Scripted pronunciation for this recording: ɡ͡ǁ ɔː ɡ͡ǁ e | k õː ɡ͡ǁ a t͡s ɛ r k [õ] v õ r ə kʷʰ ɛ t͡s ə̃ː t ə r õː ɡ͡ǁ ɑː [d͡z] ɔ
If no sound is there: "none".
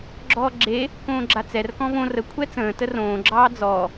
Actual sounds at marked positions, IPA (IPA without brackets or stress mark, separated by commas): ɔ̃, d͡z